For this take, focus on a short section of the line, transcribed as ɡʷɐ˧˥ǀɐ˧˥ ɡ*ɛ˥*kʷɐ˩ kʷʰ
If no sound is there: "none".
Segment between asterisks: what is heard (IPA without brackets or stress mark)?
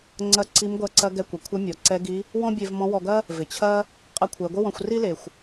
ɛ˧